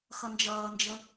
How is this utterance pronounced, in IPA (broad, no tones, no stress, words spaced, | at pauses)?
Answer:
xʌnd͡ʒʌːnd͡ʒə